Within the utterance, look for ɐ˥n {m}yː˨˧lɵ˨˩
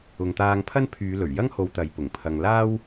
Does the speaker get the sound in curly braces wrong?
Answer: yes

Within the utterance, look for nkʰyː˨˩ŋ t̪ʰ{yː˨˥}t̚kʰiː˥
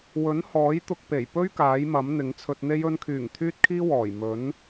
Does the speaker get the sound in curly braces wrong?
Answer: yes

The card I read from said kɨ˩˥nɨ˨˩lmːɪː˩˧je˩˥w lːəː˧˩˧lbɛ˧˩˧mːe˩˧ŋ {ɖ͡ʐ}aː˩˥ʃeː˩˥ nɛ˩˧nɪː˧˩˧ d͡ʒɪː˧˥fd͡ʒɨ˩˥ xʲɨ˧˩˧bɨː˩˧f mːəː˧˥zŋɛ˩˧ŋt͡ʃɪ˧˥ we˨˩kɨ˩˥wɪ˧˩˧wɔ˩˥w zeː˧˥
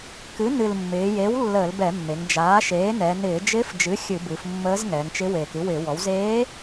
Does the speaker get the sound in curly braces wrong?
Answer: yes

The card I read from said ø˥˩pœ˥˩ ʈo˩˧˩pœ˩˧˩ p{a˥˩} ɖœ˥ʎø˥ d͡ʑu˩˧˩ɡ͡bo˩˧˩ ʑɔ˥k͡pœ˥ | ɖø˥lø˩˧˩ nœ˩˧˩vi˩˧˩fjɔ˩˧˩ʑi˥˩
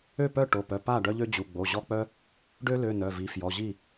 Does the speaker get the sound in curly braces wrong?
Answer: no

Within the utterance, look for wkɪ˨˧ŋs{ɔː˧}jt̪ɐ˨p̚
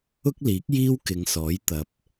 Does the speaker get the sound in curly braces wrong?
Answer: yes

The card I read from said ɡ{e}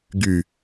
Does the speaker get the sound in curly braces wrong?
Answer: yes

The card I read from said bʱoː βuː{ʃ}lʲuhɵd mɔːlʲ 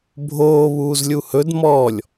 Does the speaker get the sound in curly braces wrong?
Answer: yes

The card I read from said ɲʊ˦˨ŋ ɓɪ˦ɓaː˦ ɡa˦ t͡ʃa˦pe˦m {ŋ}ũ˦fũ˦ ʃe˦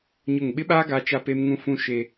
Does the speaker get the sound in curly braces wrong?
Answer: no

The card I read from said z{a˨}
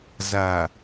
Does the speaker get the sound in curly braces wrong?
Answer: no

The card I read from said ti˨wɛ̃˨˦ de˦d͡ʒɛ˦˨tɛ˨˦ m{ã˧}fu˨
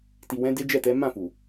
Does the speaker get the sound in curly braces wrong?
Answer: yes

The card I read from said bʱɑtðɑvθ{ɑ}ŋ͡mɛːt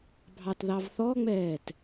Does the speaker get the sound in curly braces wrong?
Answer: yes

